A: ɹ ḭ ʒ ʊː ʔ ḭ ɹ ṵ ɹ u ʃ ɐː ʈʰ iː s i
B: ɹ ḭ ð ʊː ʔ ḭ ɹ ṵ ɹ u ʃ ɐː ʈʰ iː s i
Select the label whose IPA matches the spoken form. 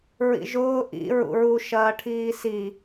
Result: A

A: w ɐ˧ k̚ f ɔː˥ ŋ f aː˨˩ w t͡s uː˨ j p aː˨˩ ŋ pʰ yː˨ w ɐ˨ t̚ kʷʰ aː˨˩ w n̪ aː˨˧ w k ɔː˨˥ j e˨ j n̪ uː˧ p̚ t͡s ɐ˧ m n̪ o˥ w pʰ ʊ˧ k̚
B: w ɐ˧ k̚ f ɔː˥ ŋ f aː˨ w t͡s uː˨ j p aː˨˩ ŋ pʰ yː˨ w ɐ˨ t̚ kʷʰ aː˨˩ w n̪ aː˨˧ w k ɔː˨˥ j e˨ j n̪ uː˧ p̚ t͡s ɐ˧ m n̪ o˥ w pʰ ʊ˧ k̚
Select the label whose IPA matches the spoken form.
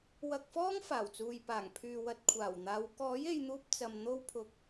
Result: A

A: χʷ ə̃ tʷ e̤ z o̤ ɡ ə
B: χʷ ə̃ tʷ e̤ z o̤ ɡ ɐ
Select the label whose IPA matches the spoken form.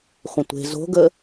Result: A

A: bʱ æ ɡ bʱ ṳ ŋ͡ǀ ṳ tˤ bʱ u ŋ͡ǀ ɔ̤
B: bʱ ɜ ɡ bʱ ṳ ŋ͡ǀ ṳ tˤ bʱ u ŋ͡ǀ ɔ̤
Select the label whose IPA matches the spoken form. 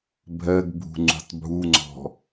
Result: B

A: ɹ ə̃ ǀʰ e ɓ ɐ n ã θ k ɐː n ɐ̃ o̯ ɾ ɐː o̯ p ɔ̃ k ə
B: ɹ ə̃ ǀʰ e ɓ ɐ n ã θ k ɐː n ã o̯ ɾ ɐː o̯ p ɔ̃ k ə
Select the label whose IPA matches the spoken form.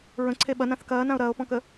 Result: B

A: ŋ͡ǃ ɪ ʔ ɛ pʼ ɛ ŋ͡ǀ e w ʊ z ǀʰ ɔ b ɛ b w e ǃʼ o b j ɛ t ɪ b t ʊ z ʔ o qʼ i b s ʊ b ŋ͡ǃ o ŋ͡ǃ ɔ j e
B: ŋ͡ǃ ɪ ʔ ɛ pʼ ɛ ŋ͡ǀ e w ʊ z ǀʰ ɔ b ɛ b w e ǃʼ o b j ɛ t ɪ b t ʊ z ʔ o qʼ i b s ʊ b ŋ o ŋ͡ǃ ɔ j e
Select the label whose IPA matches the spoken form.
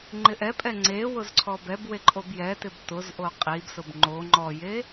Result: A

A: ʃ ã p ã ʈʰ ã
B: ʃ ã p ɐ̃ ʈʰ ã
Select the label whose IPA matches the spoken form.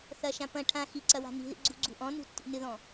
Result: B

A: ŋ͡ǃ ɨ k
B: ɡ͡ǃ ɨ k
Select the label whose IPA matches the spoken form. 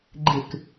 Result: B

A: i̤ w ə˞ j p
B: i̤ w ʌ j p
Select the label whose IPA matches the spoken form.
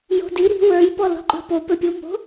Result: A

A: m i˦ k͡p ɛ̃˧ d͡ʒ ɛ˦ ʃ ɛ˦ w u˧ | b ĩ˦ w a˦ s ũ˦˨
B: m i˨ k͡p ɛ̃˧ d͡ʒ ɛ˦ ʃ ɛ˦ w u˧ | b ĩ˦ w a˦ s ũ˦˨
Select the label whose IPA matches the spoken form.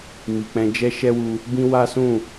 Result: B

